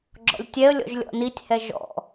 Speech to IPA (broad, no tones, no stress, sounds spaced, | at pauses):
ɡ͡ǁ ɔ̰ lʲ tʲ ɛ ə̯ lʲ ɔ̰ ʒ lʲ ɔ̰ n i tʲ h ɛ ʒ ɔ̰